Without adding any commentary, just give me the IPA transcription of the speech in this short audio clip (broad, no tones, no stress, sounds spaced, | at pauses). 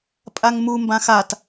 pʼ a ŋ m u m b ã x a t